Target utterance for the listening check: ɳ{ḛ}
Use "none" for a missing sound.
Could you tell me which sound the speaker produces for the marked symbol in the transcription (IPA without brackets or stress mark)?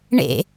ḛ